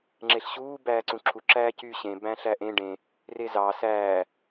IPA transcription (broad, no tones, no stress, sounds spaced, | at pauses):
ŋ͡ǁ e ɬ ɕ uː b æː ǀ ũ ǁʰ u ǁ æː c y ɕ ẽ b æ̃ ɬ æ ʔ ẽ ɖ ẽ | r e z ɑ s æː